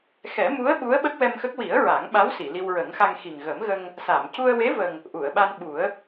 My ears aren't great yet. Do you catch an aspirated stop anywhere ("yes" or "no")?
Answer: no